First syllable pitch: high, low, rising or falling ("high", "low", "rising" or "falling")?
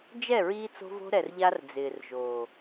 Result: falling